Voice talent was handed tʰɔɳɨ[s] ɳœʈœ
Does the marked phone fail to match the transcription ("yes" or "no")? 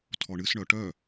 no